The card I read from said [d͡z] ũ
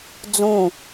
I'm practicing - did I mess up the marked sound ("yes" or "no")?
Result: no